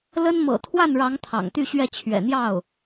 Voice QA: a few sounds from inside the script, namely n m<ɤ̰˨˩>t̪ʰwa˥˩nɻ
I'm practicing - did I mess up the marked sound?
no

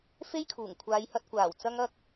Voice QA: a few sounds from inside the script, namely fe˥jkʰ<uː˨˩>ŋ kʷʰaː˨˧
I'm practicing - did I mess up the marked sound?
no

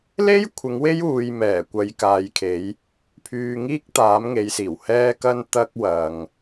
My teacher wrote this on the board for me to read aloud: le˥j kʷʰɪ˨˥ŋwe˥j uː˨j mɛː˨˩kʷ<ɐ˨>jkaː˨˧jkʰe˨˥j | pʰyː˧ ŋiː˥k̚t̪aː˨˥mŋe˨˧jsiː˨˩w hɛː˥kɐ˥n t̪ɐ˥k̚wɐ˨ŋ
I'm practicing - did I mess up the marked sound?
yes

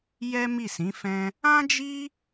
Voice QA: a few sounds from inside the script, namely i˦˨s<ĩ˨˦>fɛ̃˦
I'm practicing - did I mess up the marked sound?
no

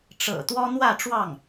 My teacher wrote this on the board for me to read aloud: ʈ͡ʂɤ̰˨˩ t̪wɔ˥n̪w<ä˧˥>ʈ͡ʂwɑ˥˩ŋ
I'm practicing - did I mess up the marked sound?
yes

